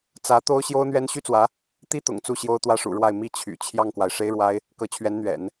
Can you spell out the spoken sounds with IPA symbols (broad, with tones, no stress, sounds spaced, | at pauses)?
t͡s ä˧˥ t̪ o˥ ʊ̯ ɕ j o˥ ʊ̯ n̪ ɥ ɛ˥ n ɕ y˥ t͡s w ä˧˥ | t̪ i˥ t̪ ʊ̰˨˩ ŋ t͡s u˥˩ ɕ j o˥ ʊ̯ t̪ w ä˥˩ ʂ ṵ˨˩ ɻ w a˥˩ ɪ̯ m i˥ t͡ɕʰ y̰˨˩ t͡ɕʰ j ɑ˥˩ ŋ k w a˩ ɪ̯ ʂ e˥ ɪ̯ ɻ w a˥ ɪ̯ | k ɤ˧˥ t͡ɕʰ ɥ ɛ˧˥ n n̪ ɥ ɛ̰˨˩˦ n